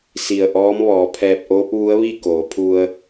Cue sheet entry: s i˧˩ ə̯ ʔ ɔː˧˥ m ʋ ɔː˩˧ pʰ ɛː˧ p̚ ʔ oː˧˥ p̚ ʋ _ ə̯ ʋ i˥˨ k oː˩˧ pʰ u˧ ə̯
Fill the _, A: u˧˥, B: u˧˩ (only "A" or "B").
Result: A